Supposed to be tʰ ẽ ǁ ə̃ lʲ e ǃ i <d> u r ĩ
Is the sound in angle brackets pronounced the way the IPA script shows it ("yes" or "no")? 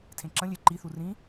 no